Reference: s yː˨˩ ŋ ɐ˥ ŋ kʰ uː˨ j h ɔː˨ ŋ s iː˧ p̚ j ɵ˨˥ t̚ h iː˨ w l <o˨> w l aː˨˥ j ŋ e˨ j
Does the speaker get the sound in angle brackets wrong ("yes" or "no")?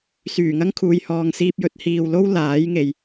yes